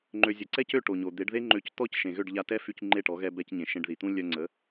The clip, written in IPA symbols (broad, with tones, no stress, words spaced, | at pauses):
ŋ͡ǃø˩zʲə˩ǀɛ˥˩c ø˥˩ʈo˩ɲo˩ d̪e˩˥ɖðe˥ŋ͡ǃø˧ct̪ɔ˥c ʃẽ˩ɣø˥˩ɖʎa˧tɛ˥ fy˧c ŋ͡ǃe˥˩ʈɔ˩˥ɣɛ˧ bɛ˧cɲẽ˩ ʃẽ˧ɖði˩t̪ũ˥ lʲœ˧ŋ͡ǀə˩˥